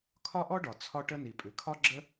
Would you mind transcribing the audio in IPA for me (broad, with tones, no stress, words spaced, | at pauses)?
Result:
kʰɒ˥ʔɔ˥ɖɒ˩ t͡sʰɒ˥ʈə˥ ni˩pʼʉ˩kʰɒ˥ ɡ͡ǁə˥